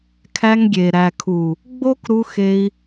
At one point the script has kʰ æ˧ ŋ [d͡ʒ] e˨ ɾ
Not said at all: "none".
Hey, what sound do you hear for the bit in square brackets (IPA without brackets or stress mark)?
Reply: ɡʲ